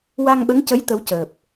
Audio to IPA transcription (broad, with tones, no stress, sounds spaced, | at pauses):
w a˧ ŋ ɓ ə˧˥ ŋ c ə˧˥ j t̪ ə˧˥ w c əː˨˩ p̚